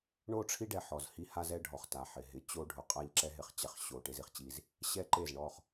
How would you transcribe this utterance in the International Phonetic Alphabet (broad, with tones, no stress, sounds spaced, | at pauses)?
ɳ o˦˨ ʈ͡ʂʰ i˦ ɖ ɛ˨ ħ ɔ˨ z h i˦ h a˦ z ɛ˦ ɖʱ ɔ˨ χ t a˨ ħ ɪ˨ ɦ ɪ˨˦ t͡ɕ o˦ ɖʱ ʊ˨ qʼ a˦˨ ʎ ǁ ɛ˦ ɦ ɪ˨ χ t͡ɕ ɛ˨ χ ɕ o˨ ʈ e˦ z i˨ χ t͡ɕ i˦ z | ɕ ɛ˦ ǃ e˦˨ z ɳ ɔ˦˨ χ